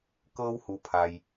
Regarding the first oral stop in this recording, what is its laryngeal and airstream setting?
plain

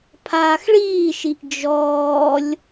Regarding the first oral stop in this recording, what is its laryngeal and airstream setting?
aspirated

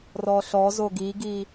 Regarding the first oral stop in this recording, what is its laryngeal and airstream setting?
plain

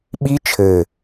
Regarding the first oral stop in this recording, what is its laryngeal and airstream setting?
implosive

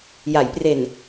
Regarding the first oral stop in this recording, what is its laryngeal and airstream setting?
plain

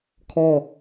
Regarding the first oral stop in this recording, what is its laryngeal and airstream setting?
aspirated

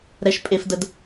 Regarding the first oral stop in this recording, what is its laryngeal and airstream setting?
ejective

